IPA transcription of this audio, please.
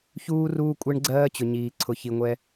ç uː˧ r uː˧ kʷʼ ɛ˧ ɳ ɡ͡ǀ ɜː˧ t͡ɕ ʊ˩ ɲ iː˩ ǀʰ ʊ˩ ç i˩ ŋʷ ɛ˧

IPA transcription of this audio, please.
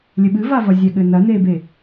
lʲ ɘ ɓ ɨ v a v ɐ zʲ ɛ ɠ ɘ n ɐ n e b e

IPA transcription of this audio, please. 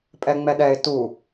pʼ ɛ ŋ͡m ɛ ɗ ɛ ɪ̯ t u

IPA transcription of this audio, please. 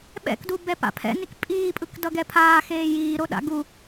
ɓ ɛ̰ k d u b ɛ p a̰ pʰ ɛ̰ n i k pʼ iː pʼ ɯ k d ʌ ɡ ɛ pʰ aː x eː j iː ɾ o ɗ a̰ ɡ u

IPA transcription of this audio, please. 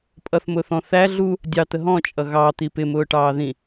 pʼ ʌ θ m ʊː θ ɔ̃ θ æ ɮ u | dʲ ɑ t̪ ə ɦ ɔ̃ t͡ʃʼ ʌ ɣ ɑ t̪ i p ɪ m ʊː ʈ ɑː ð ĩ

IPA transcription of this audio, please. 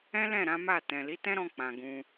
ɛ̃˦ l ɛ̃˦˨ ɾ ã˨˦ m a˦˨ t ɛ̃˨ l i˨˦ t ɛ̃˦ ɾ ɔ̃˧ k͡p ã˨ ɡ ũ˧

